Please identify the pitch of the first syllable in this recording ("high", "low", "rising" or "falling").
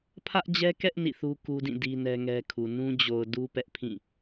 high